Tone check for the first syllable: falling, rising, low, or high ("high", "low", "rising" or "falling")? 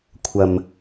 low